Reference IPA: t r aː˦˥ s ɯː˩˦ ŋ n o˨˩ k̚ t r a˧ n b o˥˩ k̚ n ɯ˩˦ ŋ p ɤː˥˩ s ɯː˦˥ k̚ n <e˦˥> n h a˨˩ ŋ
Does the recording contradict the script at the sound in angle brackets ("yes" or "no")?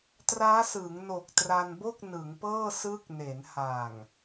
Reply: yes